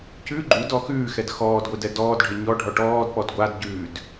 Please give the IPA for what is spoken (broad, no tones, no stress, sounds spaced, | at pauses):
c ʉ ɡ͡ǃ u d ɔ x ʉː x ɛ d x ɔː d ɡʷ e d ɛ d ɔː d ɖʱ ɪ ɲ ɔ ɖʱ ɔ ʈ ɔː d p ɔ d ɡʷ a d ɟ ʉː d